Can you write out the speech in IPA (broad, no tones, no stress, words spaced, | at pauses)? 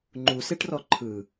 ŋ͡ǃuseʈrɔ ǃʰɯ